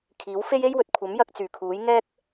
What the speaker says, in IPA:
kʰ iː˨˥ w f e˥ j e˥ j w ɵ˨ t̚ kʷʰ ɐ˨˥ m j ɐ˧ k̚ t͡s yː˨˩ kʰ uː˨˥ j ŋ ɛː˥ k̚

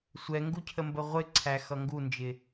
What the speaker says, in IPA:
sʷ ɛ ŋ ɡ u cʰ ə m b ə ʁʷ ɪ ǀʰ æ x ʌ ŋ ɡ u n d͡ʒ ɪ

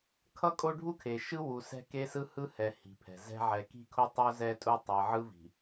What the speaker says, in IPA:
kʰ ʌ˦ kʼ o˦ ɖʱ u˦ kʰ e˨ ʃ ɯ˦ w u˨ s ɛ̤˦ k e˦ s ɯ˦ h ɯ˦ h ɛ˨ h i̤˨ pʰ ɛ̤˨ z ɛ̤˦ ʕ ɛ˨ k i̤˦˨ kʰ o˦ tˤ o˦ z ɛ˦ tʼ u˦ tˤ e˨ ʕ ɯ˦ v i̤˨

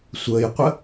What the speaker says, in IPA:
sʷ əː j qʷ ə

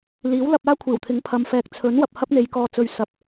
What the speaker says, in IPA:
l iː˨˥ w l ɐ˧ p̚ aː˥ kʷʰ iː˨˩ w t̪ʰ ɪ˨˥ ŋ pʰ ɐ˨ m f ɛː˨ k̚ t͡sʰ ɵ˨˥ n w ɐ˨ p̚ h ɐ˥ p̚ n̪ e˨˧ j k ɔː˨ t͡s ɵ˨ ɥ s ɐ˨ p̚

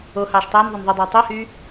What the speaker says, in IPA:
o h ɑː ʃ tˤ eː n ðˤ o n ðˤ y dˤ eː tˤ i h yː

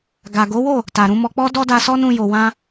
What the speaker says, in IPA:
ɡ a˨ ɡ o˨˦ w o˦˨ | t a˨ ɾ ũ˨˦ m ɔ˧ k͡p ɔ˦ d ɔ˦ d a˧ s ɔ˦ n ũ˧ j o˨ w ã˧

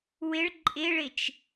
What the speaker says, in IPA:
w ɪ ɭ ǃʼ ɪ ɭ ɪ t͡ʃ

